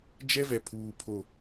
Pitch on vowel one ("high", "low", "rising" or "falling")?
high